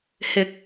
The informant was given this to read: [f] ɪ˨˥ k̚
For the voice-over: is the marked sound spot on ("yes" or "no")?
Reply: no